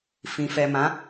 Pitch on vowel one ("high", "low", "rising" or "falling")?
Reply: low